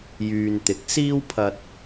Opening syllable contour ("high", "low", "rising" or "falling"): low